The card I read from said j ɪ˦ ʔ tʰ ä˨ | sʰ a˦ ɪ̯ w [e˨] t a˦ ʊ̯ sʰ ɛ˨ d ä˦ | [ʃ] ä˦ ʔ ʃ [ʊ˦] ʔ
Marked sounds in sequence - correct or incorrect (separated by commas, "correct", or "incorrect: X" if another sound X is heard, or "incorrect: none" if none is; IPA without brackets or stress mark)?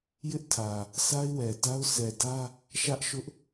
incorrect: ɛ˨, correct, correct